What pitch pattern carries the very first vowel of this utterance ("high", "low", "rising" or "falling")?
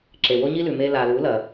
low